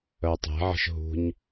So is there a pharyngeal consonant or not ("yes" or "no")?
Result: yes